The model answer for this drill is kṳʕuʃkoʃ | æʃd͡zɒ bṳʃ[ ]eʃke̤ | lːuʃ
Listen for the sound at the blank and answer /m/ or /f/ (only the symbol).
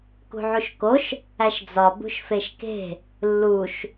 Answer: f